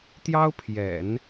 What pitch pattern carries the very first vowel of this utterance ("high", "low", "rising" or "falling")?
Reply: high